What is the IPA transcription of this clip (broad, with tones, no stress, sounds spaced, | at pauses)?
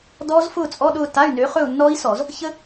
d ɔː˦˥ z f ʊː˥˧ t͡sʼ ɔ˧˥˧ ɗ ʊː˥˧ t a˧˥˧ y̯ n ø˨˥ χ ɵ˥˧ u̯ nː ɔː˦˥ i̯ s ɔ˧˩˧ z | ç ə˦˥